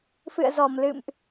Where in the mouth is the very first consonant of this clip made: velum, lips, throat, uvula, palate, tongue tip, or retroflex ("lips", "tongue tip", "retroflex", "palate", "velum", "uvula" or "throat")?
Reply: lips